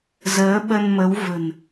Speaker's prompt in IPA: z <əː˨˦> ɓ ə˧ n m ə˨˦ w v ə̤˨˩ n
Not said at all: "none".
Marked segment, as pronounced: əː˨˦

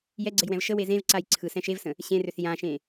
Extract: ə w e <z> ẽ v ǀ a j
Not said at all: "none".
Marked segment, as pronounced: z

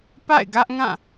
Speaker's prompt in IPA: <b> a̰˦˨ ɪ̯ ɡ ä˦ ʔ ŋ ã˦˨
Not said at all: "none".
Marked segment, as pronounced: p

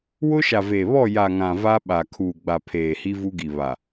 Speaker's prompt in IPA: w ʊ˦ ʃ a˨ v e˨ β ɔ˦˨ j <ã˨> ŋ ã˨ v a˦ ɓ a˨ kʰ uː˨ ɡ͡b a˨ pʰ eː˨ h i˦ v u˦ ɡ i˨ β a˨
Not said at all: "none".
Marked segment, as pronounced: a˨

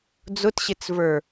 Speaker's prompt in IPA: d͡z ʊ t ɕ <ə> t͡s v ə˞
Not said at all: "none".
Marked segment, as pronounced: ɪ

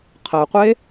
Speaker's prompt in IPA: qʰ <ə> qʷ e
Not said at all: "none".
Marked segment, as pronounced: ə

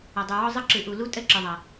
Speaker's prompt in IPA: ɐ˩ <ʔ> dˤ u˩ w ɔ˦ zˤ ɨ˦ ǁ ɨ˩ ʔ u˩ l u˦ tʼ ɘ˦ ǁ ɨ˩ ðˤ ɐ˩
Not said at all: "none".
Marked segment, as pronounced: none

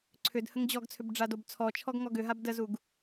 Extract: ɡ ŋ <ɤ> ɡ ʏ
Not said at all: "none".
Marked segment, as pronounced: ɔ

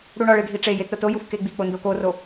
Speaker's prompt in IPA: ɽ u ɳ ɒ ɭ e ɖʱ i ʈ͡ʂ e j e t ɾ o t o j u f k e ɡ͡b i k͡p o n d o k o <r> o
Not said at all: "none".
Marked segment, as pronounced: r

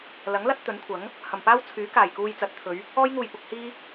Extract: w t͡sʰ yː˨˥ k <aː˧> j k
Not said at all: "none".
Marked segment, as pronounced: aː˨˩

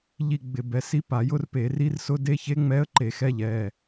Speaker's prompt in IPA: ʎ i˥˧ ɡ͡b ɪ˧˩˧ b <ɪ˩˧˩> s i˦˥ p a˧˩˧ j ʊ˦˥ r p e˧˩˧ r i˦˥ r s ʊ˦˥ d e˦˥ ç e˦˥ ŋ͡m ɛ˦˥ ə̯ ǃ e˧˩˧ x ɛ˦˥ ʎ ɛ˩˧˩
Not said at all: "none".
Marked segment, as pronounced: ɛ˩˧˩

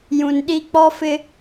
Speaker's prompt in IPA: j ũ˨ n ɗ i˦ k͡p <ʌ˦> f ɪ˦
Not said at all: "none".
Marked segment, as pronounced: ɔ˦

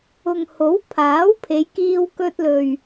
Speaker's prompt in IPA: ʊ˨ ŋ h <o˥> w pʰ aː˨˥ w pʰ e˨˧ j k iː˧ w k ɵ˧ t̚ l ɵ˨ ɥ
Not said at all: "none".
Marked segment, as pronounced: o˨˥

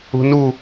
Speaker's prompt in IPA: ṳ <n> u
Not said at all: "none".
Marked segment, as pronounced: n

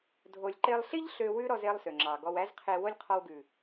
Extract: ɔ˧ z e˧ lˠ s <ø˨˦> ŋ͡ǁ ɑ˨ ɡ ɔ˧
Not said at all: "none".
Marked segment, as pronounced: ø˨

